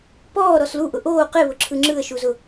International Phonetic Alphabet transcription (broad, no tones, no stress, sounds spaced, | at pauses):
p ɔː ɾ ɔ s l u ʔ ʊ ʔ oː q e β ʊ ǁʰ ɯ ŋ͡ǁ ɯ ə̯ ʃ u z ʊ